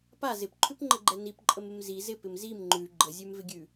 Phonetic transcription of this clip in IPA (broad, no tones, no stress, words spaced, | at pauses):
pa zɪpǃʰʉpŋ͡ǃəɡ͡ǃɛ nipǃʼəmɪm zi zɪpɪm zim ŋ͡ǃʉ ɡ͡ǃəzʲʉmvɪɡʲʉ